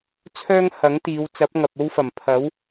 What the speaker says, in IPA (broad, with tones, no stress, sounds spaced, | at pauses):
t͡sʰ œː˥ ŋ h ɐ˨˥ ŋ t̪ iː˨˧ w t͡s ɐ˨˥ p̚ ŋ ɐ˨ p̚ o˥ w f ɐ˨˩ m pʰ ɐ˨˥ w